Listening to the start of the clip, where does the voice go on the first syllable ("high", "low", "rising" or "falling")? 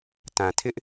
low